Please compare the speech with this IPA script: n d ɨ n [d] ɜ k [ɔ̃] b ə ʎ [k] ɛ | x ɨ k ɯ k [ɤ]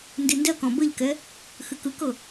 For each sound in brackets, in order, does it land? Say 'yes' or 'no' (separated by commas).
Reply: yes, yes, yes, yes